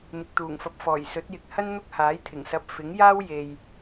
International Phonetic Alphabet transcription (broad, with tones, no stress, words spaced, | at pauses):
mɪ˨k̚t̪uː˨˩ŋfɐ˨p̚ fɔː˨˩jsɵ˨˥t̚jɪ˨˥k̚ hɐ˥nn̪ʊ˥k̚haː˨˥jt̪ʰɪ˨˩ŋ sɐ˧p̚ fɪ˨˥ŋjaː˥w je˨j